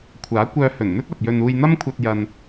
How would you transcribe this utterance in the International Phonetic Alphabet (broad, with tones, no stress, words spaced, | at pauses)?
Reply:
kʷʰaː˨˥kʷœː˧hɵ˨˩nn̪ɵ˥t̚ ɐ˨p̚jɵ˧n uː˧jn̪ɐ˥mkʷʰɐ˧t̚ jɐ˧n